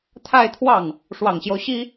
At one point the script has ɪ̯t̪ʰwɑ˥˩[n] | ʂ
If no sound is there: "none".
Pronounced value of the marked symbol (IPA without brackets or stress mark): ŋ